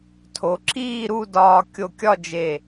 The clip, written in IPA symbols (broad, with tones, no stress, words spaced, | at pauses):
tʰo˩˧ǁiː˥˧ɾu˥˧dɒː˧ kʲo˧kʲɒ˥˧d͡ʒe˧˩